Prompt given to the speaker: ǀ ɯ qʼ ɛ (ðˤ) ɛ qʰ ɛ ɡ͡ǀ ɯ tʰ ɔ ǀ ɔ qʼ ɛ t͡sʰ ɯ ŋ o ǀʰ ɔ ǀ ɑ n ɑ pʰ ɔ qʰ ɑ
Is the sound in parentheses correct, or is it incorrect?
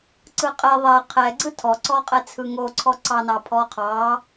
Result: correct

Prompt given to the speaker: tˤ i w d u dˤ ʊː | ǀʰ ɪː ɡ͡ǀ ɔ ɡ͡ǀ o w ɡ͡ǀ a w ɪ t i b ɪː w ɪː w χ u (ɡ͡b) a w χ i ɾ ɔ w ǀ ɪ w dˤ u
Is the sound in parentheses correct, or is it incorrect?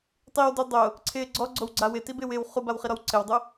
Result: incorrect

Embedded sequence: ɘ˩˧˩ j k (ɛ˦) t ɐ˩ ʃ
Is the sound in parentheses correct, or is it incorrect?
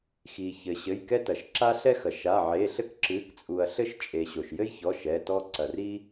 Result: correct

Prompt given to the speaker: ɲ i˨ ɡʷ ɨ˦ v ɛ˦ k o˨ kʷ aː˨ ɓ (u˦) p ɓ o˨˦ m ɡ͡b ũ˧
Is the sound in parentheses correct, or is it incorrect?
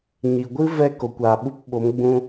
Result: incorrect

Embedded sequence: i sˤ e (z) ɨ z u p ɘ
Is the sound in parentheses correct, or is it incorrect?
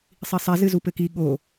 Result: correct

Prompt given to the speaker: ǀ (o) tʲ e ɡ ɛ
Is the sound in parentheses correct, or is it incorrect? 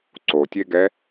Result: correct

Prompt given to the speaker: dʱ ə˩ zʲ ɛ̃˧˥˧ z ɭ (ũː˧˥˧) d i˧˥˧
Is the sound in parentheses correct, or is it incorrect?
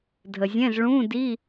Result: correct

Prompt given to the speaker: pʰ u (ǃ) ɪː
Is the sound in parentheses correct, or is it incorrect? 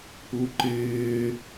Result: correct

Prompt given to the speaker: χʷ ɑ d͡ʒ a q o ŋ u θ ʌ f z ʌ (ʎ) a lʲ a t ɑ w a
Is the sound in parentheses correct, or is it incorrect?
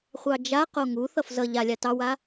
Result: correct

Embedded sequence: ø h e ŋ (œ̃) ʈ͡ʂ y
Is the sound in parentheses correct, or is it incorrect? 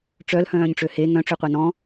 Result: correct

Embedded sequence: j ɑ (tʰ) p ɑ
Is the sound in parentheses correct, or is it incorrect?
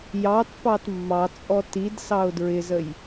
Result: incorrect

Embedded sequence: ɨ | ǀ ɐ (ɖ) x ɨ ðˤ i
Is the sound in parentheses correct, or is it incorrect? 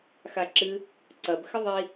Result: incorrect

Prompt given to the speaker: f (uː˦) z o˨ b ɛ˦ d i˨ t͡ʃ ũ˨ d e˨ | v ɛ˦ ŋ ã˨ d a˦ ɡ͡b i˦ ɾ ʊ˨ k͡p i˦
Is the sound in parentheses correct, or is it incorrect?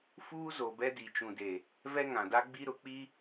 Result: correct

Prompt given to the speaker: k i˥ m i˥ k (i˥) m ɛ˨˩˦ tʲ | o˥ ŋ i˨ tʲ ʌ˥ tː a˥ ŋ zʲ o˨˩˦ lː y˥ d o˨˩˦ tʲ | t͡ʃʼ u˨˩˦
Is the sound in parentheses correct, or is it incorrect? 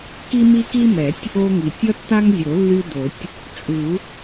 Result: correct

